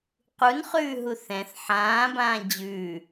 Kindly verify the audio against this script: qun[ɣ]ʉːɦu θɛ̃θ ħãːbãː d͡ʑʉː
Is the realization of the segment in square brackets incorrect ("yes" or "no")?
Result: yes